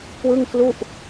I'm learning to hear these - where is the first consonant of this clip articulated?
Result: velum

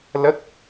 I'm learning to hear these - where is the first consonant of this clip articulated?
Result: tongue tip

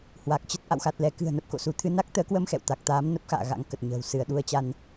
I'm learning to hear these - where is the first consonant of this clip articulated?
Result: throat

